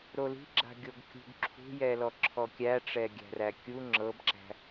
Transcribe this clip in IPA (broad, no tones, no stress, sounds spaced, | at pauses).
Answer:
ɾ o l i̤ ɡ͡ǁ a̤ ɡʲ o ɡ kʲ ṳ ɡ ǁʰ ṳ j ɛ l ɔ ǁʰ ɔ kʲ æ ʈ͡ʂ ɛ ɡʲ æ̤ r æ kʲ u ŋ͡ǁ ɤ b ǁ æ̤